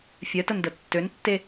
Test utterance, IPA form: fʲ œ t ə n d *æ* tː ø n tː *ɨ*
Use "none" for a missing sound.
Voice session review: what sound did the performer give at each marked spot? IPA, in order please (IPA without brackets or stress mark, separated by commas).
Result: ə, e